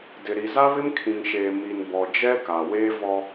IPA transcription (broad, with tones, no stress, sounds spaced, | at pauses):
d ɪ˨ ɾ i˨ z a˦ β ɪ˦ m kʰ ĩ˨ ŋ ʃ eː˨ m i˨ n b ɔ˨ d͡ʒ ɛ˦ k a˨ w eː˦ v ɔ˦